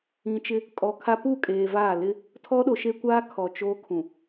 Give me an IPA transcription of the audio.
ĩ˨ t͡ʃ ɪ˦ | kʼ ɔ˨ kʰ a˦ p u˦˨ kʼ eː˨ v aː˦˨ l ɪ˦ | tʰ ɔ˦ ɗ o˨ ʃ e˦ kʷ aː˦ kʰ ɔ˨ t͡ʃ oː˦ kʰ ũ˨

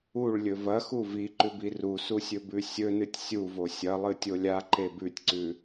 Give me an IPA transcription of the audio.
u ɭ lʲ ɵ v ɐ x u v i ǃ ʉ b i r u s u sʲ ɵ b ʉ sʲ ɵ n ɨ tʲ sʲ u v o sʲ ɐ lˠ ɨ tʲ o lʲ a ǃ e b ʉ tʲ ǀ ʉ

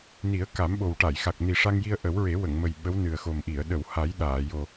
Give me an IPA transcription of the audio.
n i˨˩˦ ə̯ k a˨˩˦ m ɓ o˨˩ w ʈ a˨˩˨ j x a˨˩ k̚ n i˨˩ ʂ a˧ ŋ j i˧ ə̯ ʔ ə˨˩˦ w ɹ e˨˩˦ w ə˨˩˨ ŋ m ə˨˩ j ɓ ə˧˥ w n ɨ˨˩ ə̯ x o˨˩ m ʔ i˨˩˨ ə̯ ɗ ə˨˩˨ w h a˨˩˦ j ɗ aː˨˩˨ j o˨˩

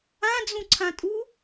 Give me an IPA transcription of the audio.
ã d͡z ũ ǀʰ ã tʼ u

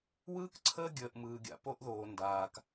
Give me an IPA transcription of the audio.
w ɯː˦ k ǀʰ əː˦ ɡʲ əː˨ ʔ m ɯː˨ ɡʲ a̰˨ p o˦ ʔ ð oː˨ n d aː˨ k

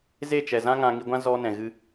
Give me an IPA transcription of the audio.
z e˦˨ t͡ʃ ɛ˨ z ã˦ ŋ ã˧ ŋ i˧ ɡʷ ã˦ z ɔ˦ n ɛ̃˨ ɣ ɨ˧

